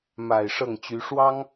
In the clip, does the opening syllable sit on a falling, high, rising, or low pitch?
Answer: low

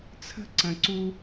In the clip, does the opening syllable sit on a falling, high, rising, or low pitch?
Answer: high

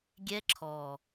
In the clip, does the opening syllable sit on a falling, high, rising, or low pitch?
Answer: high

